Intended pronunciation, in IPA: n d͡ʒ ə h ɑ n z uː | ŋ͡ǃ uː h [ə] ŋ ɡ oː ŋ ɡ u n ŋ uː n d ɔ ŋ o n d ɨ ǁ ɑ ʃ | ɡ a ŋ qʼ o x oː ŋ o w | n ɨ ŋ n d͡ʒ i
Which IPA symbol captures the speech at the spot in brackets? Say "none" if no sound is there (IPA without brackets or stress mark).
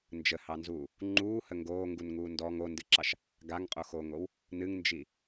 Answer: ə